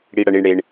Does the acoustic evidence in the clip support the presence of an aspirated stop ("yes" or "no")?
no